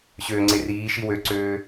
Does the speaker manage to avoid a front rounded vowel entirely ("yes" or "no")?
no